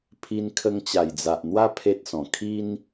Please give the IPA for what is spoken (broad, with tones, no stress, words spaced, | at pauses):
pʰi˧nkʰə˧ŋt͡ɕa˨˩jd͡za˨ʔ n̪wa˦ pʰe˦t̚sɔ̃˨˩ kʰi˦n